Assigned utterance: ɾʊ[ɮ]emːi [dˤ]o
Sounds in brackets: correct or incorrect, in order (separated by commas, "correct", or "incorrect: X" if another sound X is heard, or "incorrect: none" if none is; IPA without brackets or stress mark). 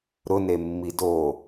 incorrect: n, incorrect: d